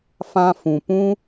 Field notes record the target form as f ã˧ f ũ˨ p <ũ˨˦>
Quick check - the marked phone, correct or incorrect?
incorrect